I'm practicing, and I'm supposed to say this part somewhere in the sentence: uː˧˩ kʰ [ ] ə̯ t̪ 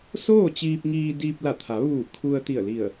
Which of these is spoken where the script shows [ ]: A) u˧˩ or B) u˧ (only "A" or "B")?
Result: B